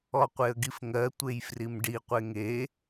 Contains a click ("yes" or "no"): no